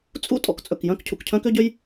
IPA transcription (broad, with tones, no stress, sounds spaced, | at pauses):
t͡sʼ ṵ˥ tʼ ɔ̰˩ k t͡sʼ ɵ˩ k j œ̃˥ k cʰ ṵ˩ k cʰ œ̃˥ k ø˥ ɟ ø˥ j